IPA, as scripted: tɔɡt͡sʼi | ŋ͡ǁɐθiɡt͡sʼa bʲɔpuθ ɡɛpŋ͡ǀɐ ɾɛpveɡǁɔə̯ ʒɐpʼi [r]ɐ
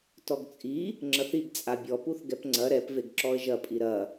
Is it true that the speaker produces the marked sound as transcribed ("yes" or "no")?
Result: no